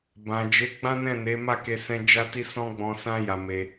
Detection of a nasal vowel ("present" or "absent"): present